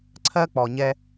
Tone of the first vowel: high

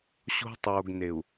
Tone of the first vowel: high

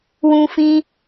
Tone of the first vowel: high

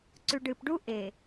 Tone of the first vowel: low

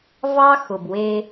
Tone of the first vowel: high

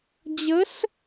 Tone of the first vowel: rising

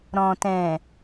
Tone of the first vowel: low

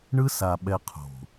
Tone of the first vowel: high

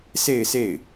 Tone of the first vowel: falling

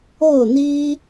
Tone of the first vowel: falling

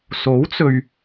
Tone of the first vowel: rising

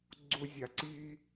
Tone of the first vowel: high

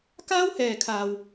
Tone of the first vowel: high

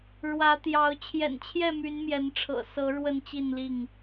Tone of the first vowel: rising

